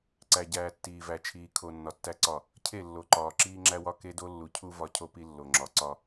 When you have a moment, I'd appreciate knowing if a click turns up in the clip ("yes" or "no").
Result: yes